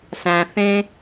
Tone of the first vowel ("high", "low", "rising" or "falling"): low